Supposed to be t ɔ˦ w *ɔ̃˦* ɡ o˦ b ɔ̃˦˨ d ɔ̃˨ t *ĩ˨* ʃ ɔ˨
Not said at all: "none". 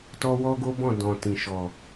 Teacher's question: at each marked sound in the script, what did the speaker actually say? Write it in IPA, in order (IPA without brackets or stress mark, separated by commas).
ɔ˦, ĩ˨